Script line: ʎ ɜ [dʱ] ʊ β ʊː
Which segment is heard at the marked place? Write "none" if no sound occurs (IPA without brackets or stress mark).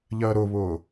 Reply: ɾ